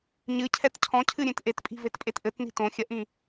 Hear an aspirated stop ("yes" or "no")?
yes